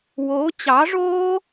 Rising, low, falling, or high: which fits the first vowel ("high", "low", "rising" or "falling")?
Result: rising